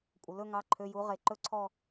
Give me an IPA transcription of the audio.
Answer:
kʷʼ ə˩ l ɵ˥˧ ŋ ɑ˩˧˩ ǃʰ ø˩˧˩ j u˨˦ ʁ e˩ ǃ ɵ˥˧ ǀʰ ɔ˥˧

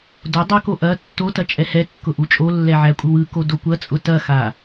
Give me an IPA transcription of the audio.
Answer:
d o dˤ ɐ k o ʔ ɐ tː o t ɐ t͡ʃʼ ɛ h ɛ kː ʊ ʔ u t͡ʃʼ o lː ɛ ʕ æ kʷʼ ɯ w ɯ k o d o kʷ ɐ t͡sʼ ʊ t ɐ x a

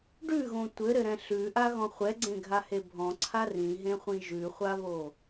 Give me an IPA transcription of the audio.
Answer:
ɖ ʉ ɣ õ tʷ ɘ ɾ ɘ ɾ ɛ̃ ɬ ʉ ʔ a ɣ ɔ̃ χʷ ɛ ɡ͡ǀ ẽ ɡʱ a h e bʱ ɔ̃ ǀʰ a r ĩ ɦ ẽ χʷ ĩ ʒ ʉ χʷ a β o

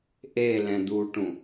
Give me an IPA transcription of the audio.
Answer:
ʔ e l ɛ̃ d̪ u ʈ ũ

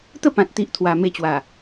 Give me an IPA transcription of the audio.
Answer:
t̪ ə˥˧ p ã˨ t̚ t̪ i˨ ʔ t̪ʰ w a˨˩ m e˧ t͡ɕ w a˨˩

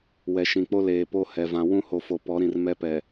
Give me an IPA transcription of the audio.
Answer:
w ɛ˨ ʃ ĩ˨ k͡p o˦ l eː˨ p o˦ h ɛ˨ v ã˨ w ũ˦ h o˨ f o˨ p ɔ˨˦ ɾ ĩ˨ r m ɛ˦ p ɛ˨

